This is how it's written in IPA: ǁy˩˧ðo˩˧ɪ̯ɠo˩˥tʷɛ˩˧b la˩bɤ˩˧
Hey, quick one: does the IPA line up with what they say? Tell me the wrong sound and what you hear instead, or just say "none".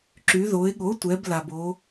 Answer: ɤ˩˧ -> o˩˧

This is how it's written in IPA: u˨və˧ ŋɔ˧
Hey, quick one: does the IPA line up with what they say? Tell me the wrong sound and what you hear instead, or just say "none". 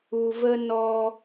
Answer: ŋ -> n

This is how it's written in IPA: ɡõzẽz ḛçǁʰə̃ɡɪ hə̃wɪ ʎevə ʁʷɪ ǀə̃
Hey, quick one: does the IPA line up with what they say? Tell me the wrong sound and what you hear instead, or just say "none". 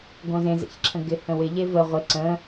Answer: none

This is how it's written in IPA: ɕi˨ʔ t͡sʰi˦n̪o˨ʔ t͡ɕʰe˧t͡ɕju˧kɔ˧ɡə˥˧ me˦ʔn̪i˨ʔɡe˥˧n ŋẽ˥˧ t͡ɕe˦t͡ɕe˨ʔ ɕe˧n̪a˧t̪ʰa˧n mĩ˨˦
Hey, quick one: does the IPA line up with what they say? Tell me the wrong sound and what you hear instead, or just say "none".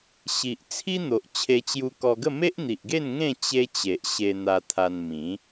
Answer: none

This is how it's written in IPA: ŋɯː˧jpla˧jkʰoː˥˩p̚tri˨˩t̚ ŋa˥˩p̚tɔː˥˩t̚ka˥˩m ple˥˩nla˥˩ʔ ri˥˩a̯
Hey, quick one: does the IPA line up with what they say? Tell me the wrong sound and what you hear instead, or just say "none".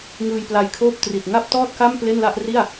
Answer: none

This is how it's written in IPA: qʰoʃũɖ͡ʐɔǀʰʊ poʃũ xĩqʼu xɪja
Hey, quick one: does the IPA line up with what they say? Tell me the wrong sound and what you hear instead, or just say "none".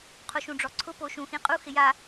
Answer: none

